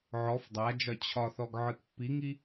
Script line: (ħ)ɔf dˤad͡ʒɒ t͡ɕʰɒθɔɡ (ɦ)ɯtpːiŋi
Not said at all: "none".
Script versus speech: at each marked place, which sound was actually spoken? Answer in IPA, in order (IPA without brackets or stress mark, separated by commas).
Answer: ʕ, ʕ